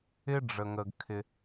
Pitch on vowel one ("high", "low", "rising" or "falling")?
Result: high